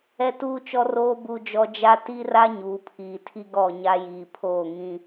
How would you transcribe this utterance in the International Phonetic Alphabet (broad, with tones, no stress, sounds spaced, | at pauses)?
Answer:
ɛ˦ t uː˦ t͡ʃ ɔ˦ r oː˦ b u˦ d͡ʒ ɔ˦ d͡ʒ a˦ t i˦ r a˦ ɲ uː˨ pʰ iː˨ tʰ i˦ ɡ ɔ˦˨ ɲ a˦ j iː˨ pʰ oː˦˨ ŋ ĩ˦